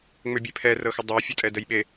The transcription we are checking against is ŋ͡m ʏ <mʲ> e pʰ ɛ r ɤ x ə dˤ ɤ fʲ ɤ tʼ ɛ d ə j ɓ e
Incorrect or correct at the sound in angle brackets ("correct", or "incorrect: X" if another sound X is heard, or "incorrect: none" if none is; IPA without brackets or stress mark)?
incorrect: bʲ